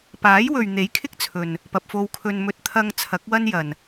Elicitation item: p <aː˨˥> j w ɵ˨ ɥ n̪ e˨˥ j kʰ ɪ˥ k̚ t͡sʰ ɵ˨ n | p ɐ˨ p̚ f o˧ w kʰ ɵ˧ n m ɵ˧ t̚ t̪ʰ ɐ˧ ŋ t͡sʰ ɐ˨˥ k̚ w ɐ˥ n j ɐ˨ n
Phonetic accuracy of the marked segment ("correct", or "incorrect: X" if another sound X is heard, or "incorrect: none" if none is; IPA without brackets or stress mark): correct